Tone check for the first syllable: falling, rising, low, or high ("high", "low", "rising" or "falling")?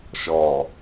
low